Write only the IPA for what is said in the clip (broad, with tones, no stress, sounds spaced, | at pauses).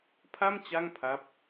pʰ a˥˩ m t͡ɕ a˥˩ ŋ pʰ a˦˥ p̚